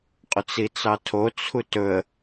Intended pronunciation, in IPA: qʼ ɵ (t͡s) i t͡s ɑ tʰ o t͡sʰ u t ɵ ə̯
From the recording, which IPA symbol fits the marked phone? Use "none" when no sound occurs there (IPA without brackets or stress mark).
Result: t͡s